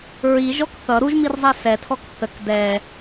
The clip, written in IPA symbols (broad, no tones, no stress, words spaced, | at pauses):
ɹiʒɔk θʌ ɾuʒmirzˤɛ sɛtʰɔk θək dɛ